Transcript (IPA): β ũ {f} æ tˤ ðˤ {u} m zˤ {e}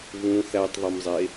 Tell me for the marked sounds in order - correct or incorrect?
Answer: incorrect: θ, incorrect: o, correct

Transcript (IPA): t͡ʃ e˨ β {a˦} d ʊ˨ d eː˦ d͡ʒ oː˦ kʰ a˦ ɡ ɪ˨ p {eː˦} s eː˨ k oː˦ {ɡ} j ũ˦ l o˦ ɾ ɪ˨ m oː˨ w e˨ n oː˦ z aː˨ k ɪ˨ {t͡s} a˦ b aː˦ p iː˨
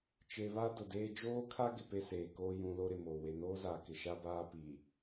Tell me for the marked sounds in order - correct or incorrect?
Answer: correct, incorrect: e˦, incorrect: none, incorrect: ʃ

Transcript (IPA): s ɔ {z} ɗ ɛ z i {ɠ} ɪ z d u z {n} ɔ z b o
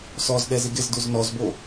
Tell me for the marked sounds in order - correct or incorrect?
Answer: correct, incorrect: ɡ, correct

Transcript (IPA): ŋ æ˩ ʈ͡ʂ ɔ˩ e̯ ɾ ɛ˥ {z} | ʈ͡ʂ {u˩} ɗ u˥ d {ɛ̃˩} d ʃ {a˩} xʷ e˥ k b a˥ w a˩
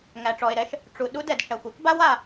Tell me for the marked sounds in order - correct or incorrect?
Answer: incorrect: ʃ, correct, incorrect: ɛ˩, correct

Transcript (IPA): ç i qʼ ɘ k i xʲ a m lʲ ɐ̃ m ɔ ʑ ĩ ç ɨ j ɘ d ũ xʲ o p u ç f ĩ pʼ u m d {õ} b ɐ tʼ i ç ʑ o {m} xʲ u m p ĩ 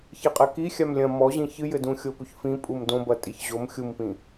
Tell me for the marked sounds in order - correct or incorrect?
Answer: correct, correct

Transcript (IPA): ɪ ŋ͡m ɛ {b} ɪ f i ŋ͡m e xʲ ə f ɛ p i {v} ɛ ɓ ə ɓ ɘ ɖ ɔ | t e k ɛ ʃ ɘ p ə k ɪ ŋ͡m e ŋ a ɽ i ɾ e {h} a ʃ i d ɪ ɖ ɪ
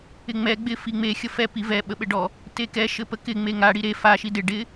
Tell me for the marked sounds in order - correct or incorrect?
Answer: incorrect: ɡ͡b, correct, incorrect: f

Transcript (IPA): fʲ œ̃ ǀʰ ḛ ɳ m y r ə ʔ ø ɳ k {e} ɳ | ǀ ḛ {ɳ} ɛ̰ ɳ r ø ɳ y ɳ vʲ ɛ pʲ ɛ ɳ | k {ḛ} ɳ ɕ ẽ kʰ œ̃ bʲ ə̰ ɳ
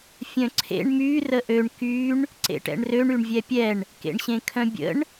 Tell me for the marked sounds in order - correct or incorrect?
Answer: incorrect: y, incorrect: ʈ, correct

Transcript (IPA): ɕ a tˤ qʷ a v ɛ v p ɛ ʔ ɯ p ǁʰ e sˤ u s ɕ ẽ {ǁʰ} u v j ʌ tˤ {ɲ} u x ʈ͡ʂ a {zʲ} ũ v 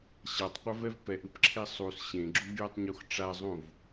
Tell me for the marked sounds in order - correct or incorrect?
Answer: incorrect: ɡ͡ǁ, correct, incorrect: zˤ

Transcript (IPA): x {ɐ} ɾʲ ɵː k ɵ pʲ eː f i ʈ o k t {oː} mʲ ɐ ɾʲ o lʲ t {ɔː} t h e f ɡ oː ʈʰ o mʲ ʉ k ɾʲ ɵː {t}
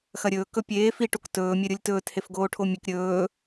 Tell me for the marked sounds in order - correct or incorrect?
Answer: correct, incorrect: ɵː, incorrect: ɵː, incorrect: none

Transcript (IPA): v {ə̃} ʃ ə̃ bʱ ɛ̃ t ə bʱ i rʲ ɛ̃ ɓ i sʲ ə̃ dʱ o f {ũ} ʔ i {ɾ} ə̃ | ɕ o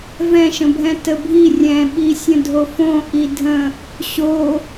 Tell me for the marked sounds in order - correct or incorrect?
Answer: incorrect: ɛ̃, incorrect: õ, incorrect: dʱ

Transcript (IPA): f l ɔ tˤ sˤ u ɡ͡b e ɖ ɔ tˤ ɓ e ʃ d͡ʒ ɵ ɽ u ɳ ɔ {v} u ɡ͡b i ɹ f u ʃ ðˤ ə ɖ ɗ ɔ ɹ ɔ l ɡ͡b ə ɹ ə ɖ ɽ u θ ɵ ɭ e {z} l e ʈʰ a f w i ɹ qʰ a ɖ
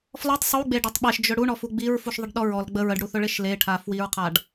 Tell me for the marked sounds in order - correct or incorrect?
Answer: incorrect: f, incorrect: ʃ

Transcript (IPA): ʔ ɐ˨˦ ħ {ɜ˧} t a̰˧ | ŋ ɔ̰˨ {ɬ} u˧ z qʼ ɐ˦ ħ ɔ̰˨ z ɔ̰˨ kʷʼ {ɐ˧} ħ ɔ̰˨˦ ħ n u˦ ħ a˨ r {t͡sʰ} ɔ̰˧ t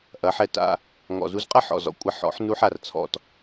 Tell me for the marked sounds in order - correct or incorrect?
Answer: incorrect: ɛ˧, incorrect: z, correct, correct

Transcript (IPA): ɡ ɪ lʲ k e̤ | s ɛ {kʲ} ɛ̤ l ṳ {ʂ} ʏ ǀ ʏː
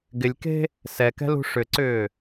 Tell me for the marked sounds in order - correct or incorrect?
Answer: incorrect: k, correct

